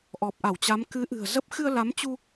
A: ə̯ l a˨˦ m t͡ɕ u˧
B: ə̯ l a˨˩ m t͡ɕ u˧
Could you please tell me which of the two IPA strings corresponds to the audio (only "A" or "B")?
A